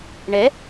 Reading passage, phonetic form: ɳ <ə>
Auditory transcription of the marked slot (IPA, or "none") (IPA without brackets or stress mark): ɛ